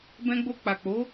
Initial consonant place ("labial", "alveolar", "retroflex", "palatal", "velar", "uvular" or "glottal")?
labial